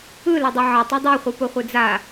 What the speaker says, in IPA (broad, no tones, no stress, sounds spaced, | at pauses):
ɯ l ɐ dˤ ɐ ʕ ɐ tˤ o dˤ o χʷ ɯ p o χʷ ɯ d͡z a